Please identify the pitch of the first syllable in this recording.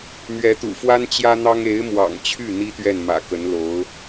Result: rising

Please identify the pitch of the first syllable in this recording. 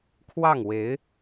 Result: falling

